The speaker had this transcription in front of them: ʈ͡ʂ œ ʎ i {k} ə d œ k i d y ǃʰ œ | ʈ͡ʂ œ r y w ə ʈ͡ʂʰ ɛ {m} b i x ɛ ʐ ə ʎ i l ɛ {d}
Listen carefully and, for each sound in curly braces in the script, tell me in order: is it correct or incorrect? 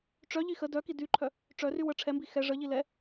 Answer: incorrect: x, correct, incorrect: none

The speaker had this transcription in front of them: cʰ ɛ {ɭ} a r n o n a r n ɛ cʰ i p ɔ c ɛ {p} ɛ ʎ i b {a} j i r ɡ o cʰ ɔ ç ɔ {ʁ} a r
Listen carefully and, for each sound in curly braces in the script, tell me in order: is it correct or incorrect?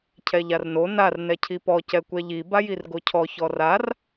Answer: incorrect: ʎ, incorrect: kʷ, correct, incorrect: r

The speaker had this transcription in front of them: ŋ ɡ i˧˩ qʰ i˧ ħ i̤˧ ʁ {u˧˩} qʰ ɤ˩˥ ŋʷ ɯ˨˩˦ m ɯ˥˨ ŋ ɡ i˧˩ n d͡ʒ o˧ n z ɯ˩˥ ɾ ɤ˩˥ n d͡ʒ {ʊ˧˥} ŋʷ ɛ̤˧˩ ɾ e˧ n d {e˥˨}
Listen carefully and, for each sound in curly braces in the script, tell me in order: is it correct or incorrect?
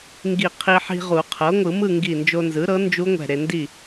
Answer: incorrect: u˨˩˦, incorrect: u˧˥, incorrect: i˥˨

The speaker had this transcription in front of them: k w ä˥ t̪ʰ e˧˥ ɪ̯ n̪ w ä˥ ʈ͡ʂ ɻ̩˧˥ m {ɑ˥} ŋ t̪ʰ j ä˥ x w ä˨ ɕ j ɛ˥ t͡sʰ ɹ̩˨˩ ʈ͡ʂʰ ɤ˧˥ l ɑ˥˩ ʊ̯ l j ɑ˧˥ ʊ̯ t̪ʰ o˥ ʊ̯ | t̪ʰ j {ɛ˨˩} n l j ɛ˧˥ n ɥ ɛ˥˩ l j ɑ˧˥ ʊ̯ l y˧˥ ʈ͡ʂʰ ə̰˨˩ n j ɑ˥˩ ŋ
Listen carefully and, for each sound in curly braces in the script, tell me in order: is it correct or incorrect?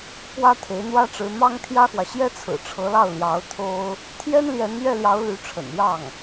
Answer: correct, incorrect: ɛ˥

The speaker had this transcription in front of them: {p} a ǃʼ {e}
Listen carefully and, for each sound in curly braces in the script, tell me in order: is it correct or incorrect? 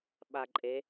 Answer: incorrect: ɓ, correct

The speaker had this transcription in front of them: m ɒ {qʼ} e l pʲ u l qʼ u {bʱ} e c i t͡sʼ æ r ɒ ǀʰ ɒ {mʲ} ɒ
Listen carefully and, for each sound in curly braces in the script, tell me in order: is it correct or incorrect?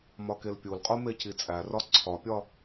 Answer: incorrect: k, incorrect: m, incorrect: pʲ

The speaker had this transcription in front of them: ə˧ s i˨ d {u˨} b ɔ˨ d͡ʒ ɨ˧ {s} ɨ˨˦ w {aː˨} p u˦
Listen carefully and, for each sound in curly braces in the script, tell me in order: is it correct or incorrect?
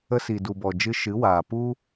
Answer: correct, incorrect: ʃ, correct

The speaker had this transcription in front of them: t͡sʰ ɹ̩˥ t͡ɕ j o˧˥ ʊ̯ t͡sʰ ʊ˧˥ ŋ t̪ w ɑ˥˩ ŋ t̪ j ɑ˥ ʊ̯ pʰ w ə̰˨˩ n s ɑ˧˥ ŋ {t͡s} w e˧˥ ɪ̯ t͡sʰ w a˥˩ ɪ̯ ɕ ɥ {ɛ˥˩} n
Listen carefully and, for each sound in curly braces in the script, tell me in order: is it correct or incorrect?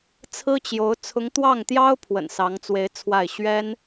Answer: correct, incorrect: ɛ˥

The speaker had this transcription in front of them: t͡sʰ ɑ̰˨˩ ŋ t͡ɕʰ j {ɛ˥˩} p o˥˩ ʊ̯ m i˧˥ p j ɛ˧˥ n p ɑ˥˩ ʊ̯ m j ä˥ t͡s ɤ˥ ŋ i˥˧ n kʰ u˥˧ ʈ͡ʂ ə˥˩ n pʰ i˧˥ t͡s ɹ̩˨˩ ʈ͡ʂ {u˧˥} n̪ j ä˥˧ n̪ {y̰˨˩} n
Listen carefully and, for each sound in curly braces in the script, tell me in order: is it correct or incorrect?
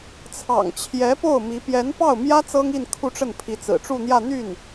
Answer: incorrect: ɛ˧˥, incorrect: u˥˧, incorrect: y˥˩

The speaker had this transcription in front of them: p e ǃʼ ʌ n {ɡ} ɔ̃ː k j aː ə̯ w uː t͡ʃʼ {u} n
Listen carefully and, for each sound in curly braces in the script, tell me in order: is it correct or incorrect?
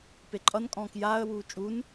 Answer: incorrect: kʼ, correct

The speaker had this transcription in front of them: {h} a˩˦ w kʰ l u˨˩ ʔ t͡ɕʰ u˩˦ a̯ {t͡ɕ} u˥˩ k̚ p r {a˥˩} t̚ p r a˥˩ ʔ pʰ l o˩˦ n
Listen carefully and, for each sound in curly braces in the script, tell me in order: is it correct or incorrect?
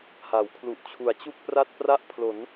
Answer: correct, correct, correct

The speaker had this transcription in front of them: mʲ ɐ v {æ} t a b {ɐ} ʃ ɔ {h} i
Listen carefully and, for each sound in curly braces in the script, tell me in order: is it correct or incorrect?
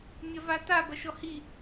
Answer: incorrect: a, correct, correct

